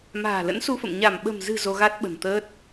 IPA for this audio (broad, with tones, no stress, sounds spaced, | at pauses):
m a̤ː˨˩ l ə̰˧˥ n s u˧ f ə̰˧˨ m ɲ a˧˩ m ɓ ə̤˨˩ m z ɨ̤˨˩ z o˧ ɣ a˦˥ t̚ ɓ ə̤˨˩ n t̪ əː˦˥ t̚